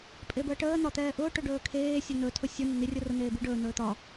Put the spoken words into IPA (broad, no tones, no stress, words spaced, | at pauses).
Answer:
pʼebəːʈəː n̪ɒt̪ɛːʔʊː ʈɵɖɵːkʰeː sʲɵn̪ɵ tʰʊsʲʊ nən̪irʲʊrʊ n̪eːbiɖɵː n̪ɵːt̪ɒ